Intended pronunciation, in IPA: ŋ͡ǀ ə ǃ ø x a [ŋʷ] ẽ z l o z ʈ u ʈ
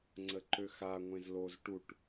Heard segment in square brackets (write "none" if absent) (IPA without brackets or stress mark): ŋʷ